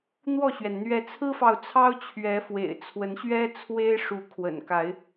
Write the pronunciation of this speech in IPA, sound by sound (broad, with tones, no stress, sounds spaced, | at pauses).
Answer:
n̪ w ɔ˥˨ ɕ ɥ ɛ˩ n n̪ ɥ ɛ˨˦ t͡sʰ ɹ̩˦ f ɑ˨ ʊ̯ t͡sʰ ɑ˦ ʊ̯ t͡ɕʰ ɥ ɛ˨˦ f w ḛ˨˩ ɪ̯ t͡sʰ w ə˨˦ n ɕ ɥ ɛ˦ t͡sʰ w e˦ ɪ̯ ʂ u˨˦ kʰ w ə̰˨˩ n k a˨˦ ɪ̯